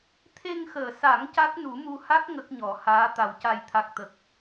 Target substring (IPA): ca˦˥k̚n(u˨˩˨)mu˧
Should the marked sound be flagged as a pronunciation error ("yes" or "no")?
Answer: yes